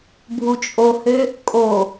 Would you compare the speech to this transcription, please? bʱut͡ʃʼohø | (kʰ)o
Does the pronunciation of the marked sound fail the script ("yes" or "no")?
yes